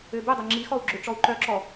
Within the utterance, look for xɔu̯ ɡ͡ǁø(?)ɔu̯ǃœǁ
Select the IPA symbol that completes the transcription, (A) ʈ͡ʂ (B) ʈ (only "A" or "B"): A